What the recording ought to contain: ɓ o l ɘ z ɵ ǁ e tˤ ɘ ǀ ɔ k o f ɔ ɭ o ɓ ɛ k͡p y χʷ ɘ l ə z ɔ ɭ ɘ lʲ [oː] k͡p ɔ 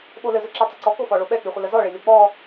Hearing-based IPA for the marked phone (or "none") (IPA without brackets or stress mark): o